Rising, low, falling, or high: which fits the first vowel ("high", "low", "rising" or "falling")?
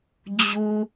low